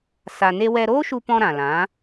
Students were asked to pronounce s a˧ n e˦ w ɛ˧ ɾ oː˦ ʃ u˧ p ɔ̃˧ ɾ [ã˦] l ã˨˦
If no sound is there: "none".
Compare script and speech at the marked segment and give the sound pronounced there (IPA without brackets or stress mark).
ã˨